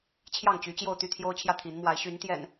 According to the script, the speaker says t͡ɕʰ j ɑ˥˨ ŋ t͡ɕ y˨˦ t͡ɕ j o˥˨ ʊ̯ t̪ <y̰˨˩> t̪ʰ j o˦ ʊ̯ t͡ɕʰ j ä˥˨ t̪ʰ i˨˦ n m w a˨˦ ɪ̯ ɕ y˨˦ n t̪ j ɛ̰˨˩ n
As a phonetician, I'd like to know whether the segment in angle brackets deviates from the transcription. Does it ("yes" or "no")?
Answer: yes